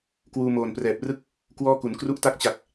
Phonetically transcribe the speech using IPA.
k w uː˧ m oː˨˩ n p r ɛː˨˩ p̚ r ɯ˥˩ k̚ | k w ɔː˥˩ k u˩˦ n k r u˦˥ ʔ t a˦˥ k̚ t͡ɕ a˨˩ k̚

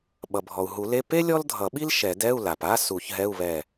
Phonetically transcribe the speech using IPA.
ɓ ʌ˩ bʱ ɔ˩ u̯ ɦ u˨˩˦ l e˧˥˧ p e˥ lʲ ɔ˥ l dʱ ʌ˨˩˦ ɓ i˥ l ʃ ɛ˨˩˦ d ɛ˧˥˧ u̯ l a˩ p a˧˥˧ s u˨˩˦ ç ɦ ɛ˧˥˧ u̯ β ɛ˧˩

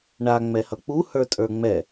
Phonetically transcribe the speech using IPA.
ɳ a ŋ͡m ɛ h ʌ k͡p u h ə˞ tʼ ə˞ ŋ͡m ɛ

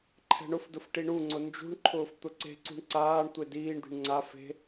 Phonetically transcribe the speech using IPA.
ǃʰ ɛ̤ ɳ ʊ f d ʊ f ʈ i ɳ u ŋ͡ǀ ʊ n d͡ʒ ṳ ɳ ǃʰ ʊː f t̪ ʊ ǀ e̤ ǀ ṳ ɳ ǀ aː ɳ tʷ e d iː ɳ d̪ i̤ ɳ ŋ͡ǀ a f e̤

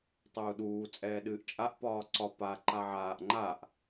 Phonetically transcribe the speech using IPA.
tˤ uː ɗ uː t͡sʼ ɛː ɗ ɨː ʔ t͡ʃʼ a ʔ p ɒː ǀ ɒ p a ǃ a ʕ aː ʔ ŋ͡ǃ a ʔ

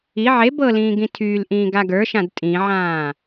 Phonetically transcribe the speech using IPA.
i ʕ e b ɤ l ĩː ɡ ĩ tʰ yː l ʔ ĩː ɡ a ɡ ə˞ ʃ ã d tʼ ĩ ʕ ãː

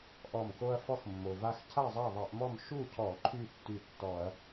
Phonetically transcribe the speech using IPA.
ʔ ɔ˧˩ m k o˦ ɐ̯ f ɔ˦ x mː o˩ v a˦ x cʰ a˥˨ zˤ a˥˨ ðˤ a˧˩˧ ʔ m ɔ˥˨ m ʃ u˥˨ cʰ ɔ˧˩˧ ǃʰ y˥˨ tː y˧˩ tː ɔ˧˩˧ ɐ̯

